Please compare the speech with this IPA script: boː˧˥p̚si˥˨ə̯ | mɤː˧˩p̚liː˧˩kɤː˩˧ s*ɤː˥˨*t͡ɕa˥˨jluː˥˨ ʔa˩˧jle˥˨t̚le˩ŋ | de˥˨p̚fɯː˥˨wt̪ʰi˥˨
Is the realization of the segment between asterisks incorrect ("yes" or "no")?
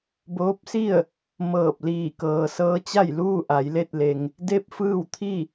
yes